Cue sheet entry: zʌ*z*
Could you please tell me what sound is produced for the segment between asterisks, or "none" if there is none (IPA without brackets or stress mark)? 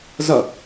none